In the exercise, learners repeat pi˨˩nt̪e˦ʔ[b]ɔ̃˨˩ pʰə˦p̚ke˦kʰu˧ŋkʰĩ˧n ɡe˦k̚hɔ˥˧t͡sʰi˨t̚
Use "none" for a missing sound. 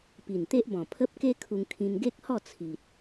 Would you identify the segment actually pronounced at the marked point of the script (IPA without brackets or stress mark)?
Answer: b